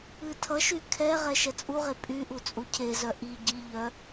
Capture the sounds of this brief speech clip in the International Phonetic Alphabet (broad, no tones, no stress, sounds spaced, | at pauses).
ɨ tʰ ʌ ʃ y kʰ ɛ ʁ ɛ ʃ ɛ t͡sʼ u ʁ e pʼ y ʔ u t͡sʼ u cʰ e z œ ʔ i ɟ i ʎ œ